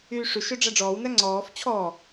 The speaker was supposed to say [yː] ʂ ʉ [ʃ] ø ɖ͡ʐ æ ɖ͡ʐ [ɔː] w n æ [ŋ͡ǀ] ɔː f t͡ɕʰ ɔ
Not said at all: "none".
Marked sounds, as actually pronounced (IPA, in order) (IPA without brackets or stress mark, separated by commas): yː, ʃ, ɔː, ŋ͡ǀ